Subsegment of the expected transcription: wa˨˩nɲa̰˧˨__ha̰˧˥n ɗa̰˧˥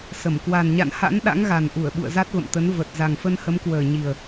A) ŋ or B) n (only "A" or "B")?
B